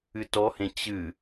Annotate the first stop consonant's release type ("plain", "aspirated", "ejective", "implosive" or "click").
plain